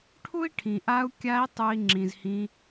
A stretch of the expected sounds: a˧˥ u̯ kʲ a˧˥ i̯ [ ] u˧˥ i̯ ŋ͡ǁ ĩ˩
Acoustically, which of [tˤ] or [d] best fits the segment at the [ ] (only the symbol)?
tˤ